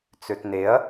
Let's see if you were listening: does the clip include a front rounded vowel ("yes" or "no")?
yes